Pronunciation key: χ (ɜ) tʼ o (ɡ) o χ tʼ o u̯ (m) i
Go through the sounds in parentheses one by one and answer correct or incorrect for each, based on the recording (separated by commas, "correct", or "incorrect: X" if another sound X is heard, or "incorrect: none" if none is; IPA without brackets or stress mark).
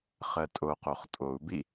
correct, incorrect: q, incorrect: b